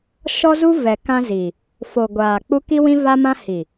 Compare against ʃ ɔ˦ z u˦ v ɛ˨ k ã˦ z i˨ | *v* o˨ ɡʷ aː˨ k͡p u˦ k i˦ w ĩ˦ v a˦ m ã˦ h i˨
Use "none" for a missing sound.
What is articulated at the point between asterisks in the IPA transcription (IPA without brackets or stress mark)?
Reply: f